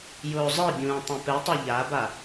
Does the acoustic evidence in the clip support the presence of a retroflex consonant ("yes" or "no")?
no